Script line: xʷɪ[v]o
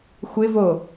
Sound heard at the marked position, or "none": v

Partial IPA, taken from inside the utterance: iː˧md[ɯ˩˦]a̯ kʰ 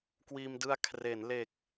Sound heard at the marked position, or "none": ɯ˧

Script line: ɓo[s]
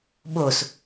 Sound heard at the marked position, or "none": s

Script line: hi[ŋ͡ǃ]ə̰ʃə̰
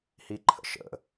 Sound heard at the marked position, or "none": ǃʰ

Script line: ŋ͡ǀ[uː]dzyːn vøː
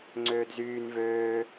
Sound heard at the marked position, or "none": øː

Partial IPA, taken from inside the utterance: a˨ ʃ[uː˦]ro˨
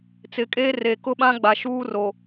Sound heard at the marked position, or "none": uː˦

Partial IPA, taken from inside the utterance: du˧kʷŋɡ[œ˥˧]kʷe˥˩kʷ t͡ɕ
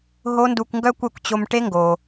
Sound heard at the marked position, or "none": œ˥˧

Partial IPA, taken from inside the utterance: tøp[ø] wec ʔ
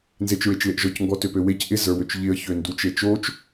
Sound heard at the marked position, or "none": ø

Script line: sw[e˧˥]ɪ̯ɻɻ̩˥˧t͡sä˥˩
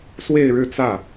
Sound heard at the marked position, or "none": e˥˧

